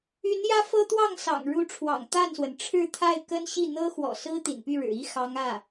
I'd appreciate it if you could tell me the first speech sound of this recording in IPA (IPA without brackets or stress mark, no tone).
y